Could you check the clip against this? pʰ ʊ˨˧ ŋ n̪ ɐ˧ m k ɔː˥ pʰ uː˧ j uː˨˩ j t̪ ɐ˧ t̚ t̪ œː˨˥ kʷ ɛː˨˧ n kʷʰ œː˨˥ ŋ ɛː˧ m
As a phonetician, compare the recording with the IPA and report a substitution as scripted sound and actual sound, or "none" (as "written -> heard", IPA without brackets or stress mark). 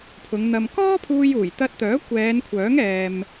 none